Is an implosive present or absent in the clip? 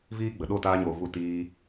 present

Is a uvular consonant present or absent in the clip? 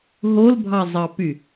absent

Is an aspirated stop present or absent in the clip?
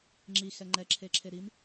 present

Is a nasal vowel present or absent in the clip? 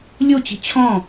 present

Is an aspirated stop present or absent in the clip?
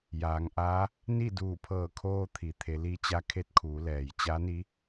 present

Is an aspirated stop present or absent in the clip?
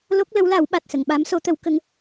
absent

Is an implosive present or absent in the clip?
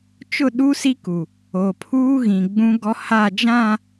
present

